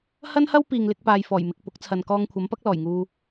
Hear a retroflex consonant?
no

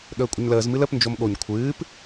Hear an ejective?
yes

